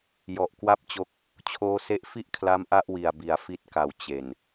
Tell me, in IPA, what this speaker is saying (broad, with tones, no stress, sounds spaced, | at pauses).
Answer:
j ɔ˨˩ ʔ k w a˥˩ p̚ t͡ɕ o˦˥ k̚ | t͡ɕʰ oː˦˥ s e˦˥ ʔ f i˥˩ ʔ kʰ l a˦˥ m ʔ a˥˩ ʔ w i˨˩ a̯ b i˩˦ a̯ f i˦˥ t̚ k a˨˩ w t͡ɕ e˨˩ n